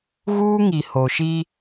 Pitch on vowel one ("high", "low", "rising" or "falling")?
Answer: high